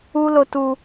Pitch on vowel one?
high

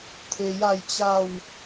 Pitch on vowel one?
low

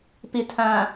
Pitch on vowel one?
low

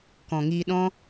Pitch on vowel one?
low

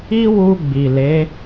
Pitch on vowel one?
high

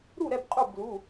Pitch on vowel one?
falling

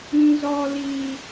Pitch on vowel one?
high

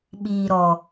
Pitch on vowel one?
low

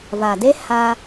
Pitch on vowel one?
low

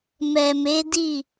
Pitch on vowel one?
low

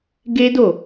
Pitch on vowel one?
high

